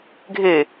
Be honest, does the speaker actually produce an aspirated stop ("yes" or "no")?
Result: no